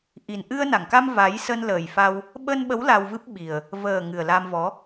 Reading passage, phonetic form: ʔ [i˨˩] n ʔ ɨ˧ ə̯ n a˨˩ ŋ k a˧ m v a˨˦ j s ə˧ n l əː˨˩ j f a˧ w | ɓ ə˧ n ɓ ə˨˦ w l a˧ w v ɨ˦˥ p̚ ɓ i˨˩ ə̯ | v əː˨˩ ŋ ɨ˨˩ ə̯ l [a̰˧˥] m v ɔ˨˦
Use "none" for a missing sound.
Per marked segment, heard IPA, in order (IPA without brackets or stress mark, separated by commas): i˨˩, a˧